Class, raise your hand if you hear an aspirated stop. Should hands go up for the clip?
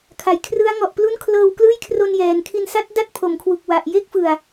yes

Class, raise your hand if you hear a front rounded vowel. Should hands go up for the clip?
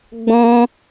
no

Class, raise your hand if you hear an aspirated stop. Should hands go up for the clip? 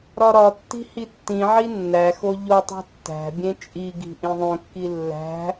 no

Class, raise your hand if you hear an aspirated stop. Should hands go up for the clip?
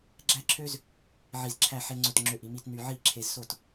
yes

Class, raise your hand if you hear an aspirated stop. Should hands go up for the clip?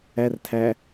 yes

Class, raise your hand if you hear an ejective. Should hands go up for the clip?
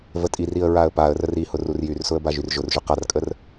yes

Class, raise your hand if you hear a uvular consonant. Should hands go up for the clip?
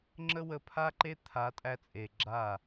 no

